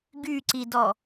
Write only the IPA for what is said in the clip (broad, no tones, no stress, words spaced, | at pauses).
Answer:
ɡyǀidɔ